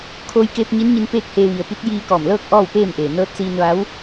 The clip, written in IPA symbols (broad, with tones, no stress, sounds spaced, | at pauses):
kʰ oː˧ j k eː˧ p̚ ɲ i˧˥ n ɲ i˧ n p eː˥˨ k̚ h eː˧ ʋ i˩ ə̯ p i˧˥ t̚ j iː˧ k ɔː˧˩ m l ɤː˥˨ k̚ ʔ ɔː˥˨ w p eː˥˨ m ʔ eː˩ n ɤː˧˥ t̚ s iː˧ n ʋ a˧˥ w